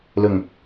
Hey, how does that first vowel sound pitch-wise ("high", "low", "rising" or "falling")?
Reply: low